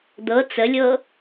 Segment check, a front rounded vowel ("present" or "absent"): absent